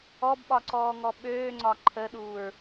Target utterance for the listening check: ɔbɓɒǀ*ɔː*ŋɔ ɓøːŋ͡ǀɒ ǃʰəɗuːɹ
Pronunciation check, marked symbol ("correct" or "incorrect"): correct